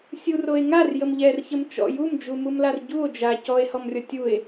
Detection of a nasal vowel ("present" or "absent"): absent